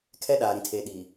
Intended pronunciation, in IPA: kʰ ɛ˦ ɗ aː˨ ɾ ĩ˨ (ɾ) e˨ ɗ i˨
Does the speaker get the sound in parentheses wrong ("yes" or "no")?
yes